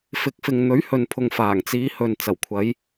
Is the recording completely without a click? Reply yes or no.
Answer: yes